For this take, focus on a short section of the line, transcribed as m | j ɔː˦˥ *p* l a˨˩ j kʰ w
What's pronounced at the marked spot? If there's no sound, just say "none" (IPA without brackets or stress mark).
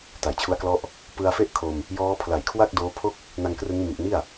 pʰ